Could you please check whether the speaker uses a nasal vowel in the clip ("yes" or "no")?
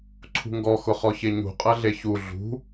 no